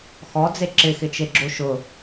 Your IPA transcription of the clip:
x ɔ d͡z e ǁ ɪ x ɪ t͡ʃ e ɡ͡ǁ o ʃ ʊ

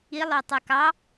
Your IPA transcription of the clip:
i lˠ œ tˤ œ k ɑ

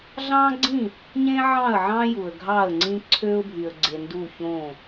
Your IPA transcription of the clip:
ɮ ɑ̃˦ ɡ͡ǀ ĩ˦˨ | ɲ ẽ˦ ʕ ɑ̃˦˨ ə̯ ʕ ɑ̃˦ j u˨ ə̯ ɡʱ ɑ˦˨ ə̯ ŋ͡ǀ ĩ˦ ǀʰ ø˦ ʊ̯ bʱ y˨ ə̯ ɡ͡ǀ e˨ n d u˦˨ ç õ˦˨

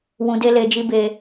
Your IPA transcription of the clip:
w ũ˧ d e˦ l e˧ d͡ʒ i˦ b e˧

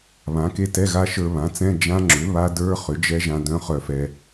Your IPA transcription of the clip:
β ã˩˥ k e˦˥ t ɛ˧˥˧ ɣ a˦˥ ʃ ə˞˧ β ã˩˥ t͡s ɛ̃˧˥˧ d͡ʒ ã˦˥ ŋ͡ǁ ʏ˩˥ β a˦˥ d ə˞˧˥˧ χ ʏ˩˥ d͡ʒ ɛ˦˥ ʒ ã˧ d œ̃˦˥ χ œ˧ f ɛ˧

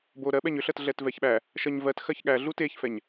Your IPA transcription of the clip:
b o ɾ ɜ ɓ ɛ ɲ ʏ ɬ ɜ t ɮ ɛ t v ɛ ç ɓ æ | ʃ ɜ ɲ v ɜ t x ɜ ç ɠ æ ɮ u t e ç f ɛ ɲ

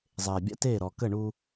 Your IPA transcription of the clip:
zˤ eː˧ bʲ a̰˥ t eː˥˧ ɾ ɔ˧ k ə˥˧ ɳ u˥

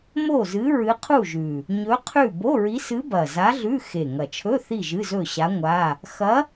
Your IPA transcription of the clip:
m o˥˨ z ɨ˧˥ ɹ ɨ˧˥ qʰ u˥˨ ʒ ʉ˨˩ | ɲ ɵ˧˥ qʰ ʉ˥˨ b o˧˥˧ ɹ i˧˥ s ɨ˧˥ b ɐ˨˩ z a˧˥ ɮ ʉ˧˥˧ x e˨˩ ŋ ɐ˨˩ t͡ʃʰ ɵ˧˥˧ θ i˥˨ ʒ ɨ˧˥˧ z ɵ˥˨ ɕ a˧˥ ŋʷ a˧˥˧ | x ɐ˧˥

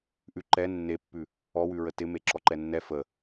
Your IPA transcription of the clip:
ʔ ʉ ǃ ɛ nː e pː ʉ | ɔ w ʉ ɹ ə t ɪ m e ǁ ɔ ǃ ɛ nː ɛ f ə

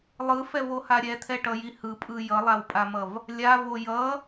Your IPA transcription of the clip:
lˠ ɯ f ɛ v o h a ɾʲ ɛ t̪ʰ ɛ ʈ ʌ j i h ɯ pʼ ɯ j ʌ lˠ a w pʼ a m ʌ v | lʲ a v o j ʌ

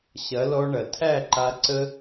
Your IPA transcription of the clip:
ɕ ɐ˨˦ l ɔ˧ ɳ ɐ˨ tʰ æ˦˨ ǃ a˧ ǀ ə˦

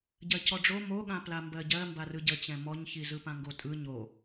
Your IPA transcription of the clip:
ɟ ɜ c ɔ ɖ͡ʐ o m o ɠ ã p l a m b ɜ ɟ ɜ m b a r ɯ ɟ ə t͡ɕ ɛ̃ m ɔ ɲ ç i z ɯ p ã ŋ ɡ o tʼ ɯ ɲ o

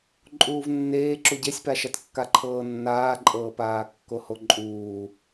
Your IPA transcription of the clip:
ǃʼ uː v nː eː ǁ u ɟ e sʲ p a ʃ a t kː a ǃʰ ɤː nː aː ǃʼ ɤː p aː kː o h o ǃʼ uː

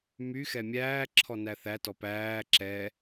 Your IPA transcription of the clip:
m y x ɛ mʲ æː ǁʰ ɔ n æ θ æ t ɔ p æː ǁ ɛ

